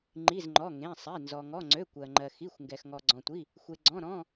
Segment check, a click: present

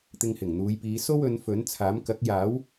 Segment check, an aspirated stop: present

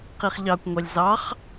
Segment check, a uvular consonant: present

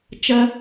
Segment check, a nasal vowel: absent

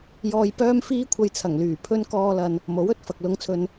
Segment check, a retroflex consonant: absent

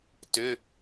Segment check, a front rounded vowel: present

